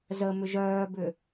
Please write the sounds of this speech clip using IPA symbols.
zə mʏʒœːbʏ

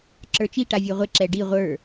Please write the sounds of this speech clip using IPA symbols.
ǁə˞t͡ʃi ʈavʲə˞ʁʷe ǁɛɖi ʁʷə˞

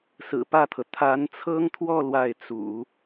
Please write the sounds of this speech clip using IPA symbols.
sɹ̩˨˩pä˥˩t̪ʰɤ˩ t̪ʰa˧˥nt͡sʰɤ˥ŋt̪ʰwɔ˥˧ lwa˥˩ɪ̯t͡sṵ˨˩˦

